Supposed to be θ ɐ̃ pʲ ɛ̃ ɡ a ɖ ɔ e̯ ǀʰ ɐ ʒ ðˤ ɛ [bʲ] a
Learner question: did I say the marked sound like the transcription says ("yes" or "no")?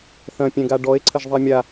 no